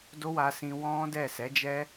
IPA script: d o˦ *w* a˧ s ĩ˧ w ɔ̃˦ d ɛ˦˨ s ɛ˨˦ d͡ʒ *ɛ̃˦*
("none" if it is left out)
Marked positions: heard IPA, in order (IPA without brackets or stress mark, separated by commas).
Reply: w, ɛ˦